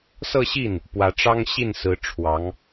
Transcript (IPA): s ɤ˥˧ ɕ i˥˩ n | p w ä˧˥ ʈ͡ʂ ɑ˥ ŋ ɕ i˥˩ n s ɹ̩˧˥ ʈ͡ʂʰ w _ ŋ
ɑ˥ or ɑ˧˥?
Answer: ɑ˧˥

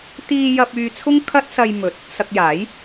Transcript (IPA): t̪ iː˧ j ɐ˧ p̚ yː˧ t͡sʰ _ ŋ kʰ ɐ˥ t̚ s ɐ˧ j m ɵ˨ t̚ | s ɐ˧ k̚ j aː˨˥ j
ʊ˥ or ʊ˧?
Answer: ʊ˥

